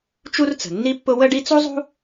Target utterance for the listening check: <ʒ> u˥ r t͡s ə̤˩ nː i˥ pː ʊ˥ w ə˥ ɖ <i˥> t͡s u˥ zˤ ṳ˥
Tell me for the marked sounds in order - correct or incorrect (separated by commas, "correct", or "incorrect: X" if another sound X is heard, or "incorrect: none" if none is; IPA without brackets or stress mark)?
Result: incorrect: t͡ʃ, correct